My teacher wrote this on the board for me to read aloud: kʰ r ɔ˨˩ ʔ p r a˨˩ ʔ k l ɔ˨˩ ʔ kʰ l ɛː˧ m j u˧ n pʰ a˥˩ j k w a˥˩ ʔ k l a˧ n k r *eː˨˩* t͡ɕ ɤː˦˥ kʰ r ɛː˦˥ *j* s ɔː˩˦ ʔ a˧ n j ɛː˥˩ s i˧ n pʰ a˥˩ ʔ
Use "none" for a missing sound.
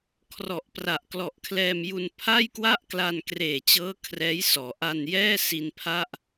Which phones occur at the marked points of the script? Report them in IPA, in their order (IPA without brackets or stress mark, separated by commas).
eː˨˩, j